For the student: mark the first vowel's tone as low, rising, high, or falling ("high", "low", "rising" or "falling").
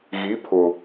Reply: rising